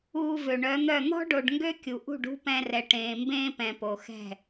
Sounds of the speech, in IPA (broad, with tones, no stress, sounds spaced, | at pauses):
uː˧ v ø˨ ɳ œ˨˦ n̪ œ˦˨ n̪ ɔ̤˦ ɖ o˨ ɖ ŋ ɡ ø˦ kʲ u˨ ʔ ṳ˦˨ ɖ ṳ˦ p ɛ̃˧ r ɛ˨ ʈ ẽː˨ m b ẽː˦ p ɛ̃˨ p o˨ x ɛ̤˦˨